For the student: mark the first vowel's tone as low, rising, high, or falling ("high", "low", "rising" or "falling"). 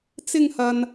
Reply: high